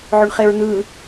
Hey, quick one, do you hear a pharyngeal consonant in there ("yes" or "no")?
yes